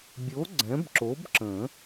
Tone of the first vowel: rising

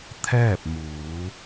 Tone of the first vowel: falling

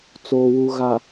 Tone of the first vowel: low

